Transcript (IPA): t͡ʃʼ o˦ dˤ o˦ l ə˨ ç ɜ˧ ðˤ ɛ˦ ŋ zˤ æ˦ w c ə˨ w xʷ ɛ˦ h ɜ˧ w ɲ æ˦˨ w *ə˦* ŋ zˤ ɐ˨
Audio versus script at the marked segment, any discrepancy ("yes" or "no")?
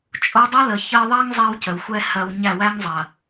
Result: yes